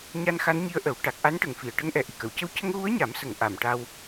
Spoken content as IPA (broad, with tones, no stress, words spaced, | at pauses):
ɲa˧nxa˧˥nɲi˧˥ə̯ ʔə˨˩˦w ʈa˨˩k̚ʔa˧˥nʈə˨˩ŋ fi˨˩˨ə̯ʈə˧˥ŋʔɛ˨˩ ʔi˨˩kə˨˩˨wcə˧w cə˧ŋɣu˧˥ə̯ɲa˨˩˦m sə˨˩˦ŋ ʔa˨˩˨mʈa˧w